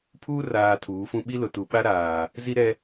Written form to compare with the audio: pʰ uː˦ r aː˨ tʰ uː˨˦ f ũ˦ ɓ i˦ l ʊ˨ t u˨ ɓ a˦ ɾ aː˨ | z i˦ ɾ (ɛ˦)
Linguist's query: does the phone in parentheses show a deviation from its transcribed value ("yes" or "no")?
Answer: no